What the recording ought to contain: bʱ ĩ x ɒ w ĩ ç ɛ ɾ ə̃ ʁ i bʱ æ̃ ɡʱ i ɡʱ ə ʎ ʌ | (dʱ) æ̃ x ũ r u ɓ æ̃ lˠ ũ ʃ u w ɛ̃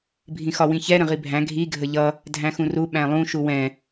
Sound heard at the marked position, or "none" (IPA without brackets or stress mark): dʱ